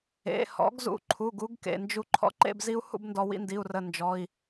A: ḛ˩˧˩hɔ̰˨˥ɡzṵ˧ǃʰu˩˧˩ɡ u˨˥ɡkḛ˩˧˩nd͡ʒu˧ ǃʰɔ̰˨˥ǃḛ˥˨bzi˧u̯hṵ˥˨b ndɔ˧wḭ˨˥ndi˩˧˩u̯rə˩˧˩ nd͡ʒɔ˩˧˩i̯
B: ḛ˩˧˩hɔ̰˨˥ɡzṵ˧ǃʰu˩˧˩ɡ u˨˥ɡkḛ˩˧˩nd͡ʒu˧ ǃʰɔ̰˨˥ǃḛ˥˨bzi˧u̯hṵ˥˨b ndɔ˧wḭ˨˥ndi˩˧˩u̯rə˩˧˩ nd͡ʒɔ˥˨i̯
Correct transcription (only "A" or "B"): A